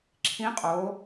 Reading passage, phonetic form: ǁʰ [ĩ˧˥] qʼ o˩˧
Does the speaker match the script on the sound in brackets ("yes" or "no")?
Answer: yes